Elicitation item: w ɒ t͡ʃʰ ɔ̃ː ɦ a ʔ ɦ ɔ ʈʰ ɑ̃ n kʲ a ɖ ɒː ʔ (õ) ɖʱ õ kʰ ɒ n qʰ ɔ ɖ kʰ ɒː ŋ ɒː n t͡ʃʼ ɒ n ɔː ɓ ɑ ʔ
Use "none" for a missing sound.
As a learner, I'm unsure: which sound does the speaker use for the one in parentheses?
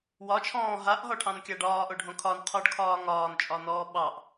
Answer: o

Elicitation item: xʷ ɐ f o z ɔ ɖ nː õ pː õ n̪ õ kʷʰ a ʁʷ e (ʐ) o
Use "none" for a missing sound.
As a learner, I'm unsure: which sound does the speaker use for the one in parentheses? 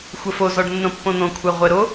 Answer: ɾ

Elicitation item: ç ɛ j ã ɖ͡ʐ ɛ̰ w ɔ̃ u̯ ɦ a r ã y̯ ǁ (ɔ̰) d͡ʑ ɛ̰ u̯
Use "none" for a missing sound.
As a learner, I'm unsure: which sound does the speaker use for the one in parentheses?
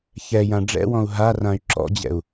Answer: ɔ̰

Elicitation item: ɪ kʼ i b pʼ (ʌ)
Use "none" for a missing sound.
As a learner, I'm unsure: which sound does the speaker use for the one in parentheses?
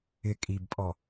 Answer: ɔ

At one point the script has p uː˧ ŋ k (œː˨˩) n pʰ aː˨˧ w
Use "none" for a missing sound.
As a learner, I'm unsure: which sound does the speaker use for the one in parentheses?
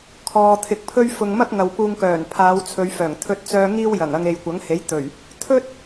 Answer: œː˨˩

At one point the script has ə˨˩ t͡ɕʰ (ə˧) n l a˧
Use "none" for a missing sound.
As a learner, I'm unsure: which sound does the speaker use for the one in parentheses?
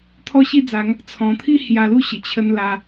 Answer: ə˧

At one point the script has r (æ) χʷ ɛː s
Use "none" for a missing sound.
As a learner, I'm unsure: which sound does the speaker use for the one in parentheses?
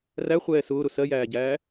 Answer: æ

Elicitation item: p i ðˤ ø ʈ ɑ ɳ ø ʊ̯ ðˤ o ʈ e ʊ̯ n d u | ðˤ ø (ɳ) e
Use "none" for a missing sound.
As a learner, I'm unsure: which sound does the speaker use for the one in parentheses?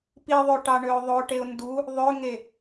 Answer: ŋ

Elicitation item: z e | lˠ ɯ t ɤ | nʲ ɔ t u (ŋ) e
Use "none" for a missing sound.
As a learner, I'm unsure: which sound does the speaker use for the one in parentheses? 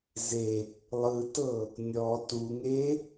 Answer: ŋ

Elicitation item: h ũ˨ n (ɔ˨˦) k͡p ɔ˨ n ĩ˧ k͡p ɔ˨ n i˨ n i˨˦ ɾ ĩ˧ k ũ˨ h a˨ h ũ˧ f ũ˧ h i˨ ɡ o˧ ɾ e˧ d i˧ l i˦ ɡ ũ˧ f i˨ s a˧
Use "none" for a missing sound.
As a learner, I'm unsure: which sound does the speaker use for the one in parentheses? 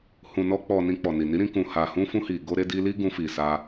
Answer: ɔ˧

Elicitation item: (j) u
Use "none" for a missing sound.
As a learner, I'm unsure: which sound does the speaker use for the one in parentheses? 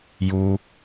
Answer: j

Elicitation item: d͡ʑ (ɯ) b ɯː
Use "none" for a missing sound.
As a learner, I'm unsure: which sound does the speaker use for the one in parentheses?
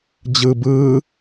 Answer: ɯ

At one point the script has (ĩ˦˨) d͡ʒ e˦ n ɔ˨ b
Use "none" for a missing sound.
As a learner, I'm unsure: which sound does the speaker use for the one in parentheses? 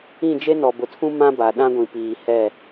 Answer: ĩ˦˨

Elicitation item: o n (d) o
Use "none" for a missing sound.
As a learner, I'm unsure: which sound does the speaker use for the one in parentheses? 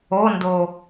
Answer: d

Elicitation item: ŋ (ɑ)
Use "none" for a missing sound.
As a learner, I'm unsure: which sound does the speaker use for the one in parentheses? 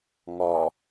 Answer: ɒ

